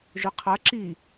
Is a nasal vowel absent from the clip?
yes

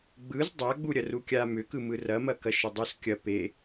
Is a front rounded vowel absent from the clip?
no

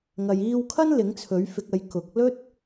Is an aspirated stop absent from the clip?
no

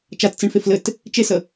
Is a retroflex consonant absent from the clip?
no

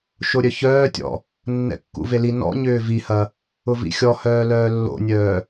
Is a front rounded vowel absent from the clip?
no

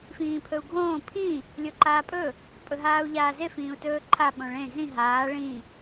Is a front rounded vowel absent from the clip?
yes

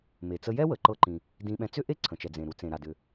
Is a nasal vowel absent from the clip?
no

